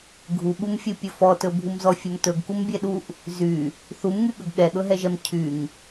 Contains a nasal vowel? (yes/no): no